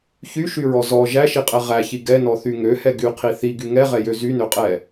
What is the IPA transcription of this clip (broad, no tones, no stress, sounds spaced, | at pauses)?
ç y ʃ y ɹ ɔ z ɔ ʒ æ ʃ i qʼ ɛ ʁ æ ç i ɡ ɛ n ɔ θ y ŋ ø h ɛ ɡ y qʰ i θ i ɡ y ŋ ɛ ʁ ɛ j ø z y n ø qʼ ɛ